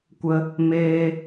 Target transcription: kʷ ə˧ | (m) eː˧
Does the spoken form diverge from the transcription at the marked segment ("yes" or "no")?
no